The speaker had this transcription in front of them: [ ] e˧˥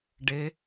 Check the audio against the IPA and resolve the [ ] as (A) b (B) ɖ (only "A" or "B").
B